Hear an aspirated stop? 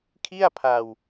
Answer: yes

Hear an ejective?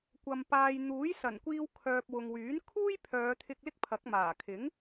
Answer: no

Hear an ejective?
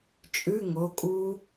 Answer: yes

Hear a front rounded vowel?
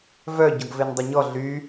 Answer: yes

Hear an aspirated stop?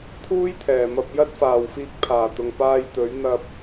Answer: yes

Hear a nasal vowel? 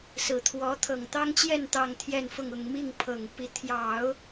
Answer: no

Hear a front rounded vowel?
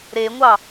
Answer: no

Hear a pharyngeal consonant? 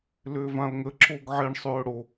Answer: yes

